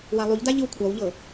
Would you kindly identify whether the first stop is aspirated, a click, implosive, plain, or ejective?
plain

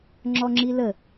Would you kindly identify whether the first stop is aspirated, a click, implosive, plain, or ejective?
click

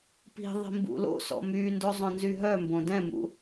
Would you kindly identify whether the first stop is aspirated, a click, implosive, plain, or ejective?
plain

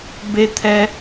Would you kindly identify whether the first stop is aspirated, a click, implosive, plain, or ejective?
plain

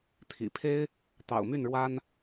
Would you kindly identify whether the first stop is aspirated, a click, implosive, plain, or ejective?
aspirated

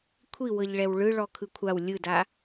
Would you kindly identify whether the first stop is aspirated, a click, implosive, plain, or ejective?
aspirated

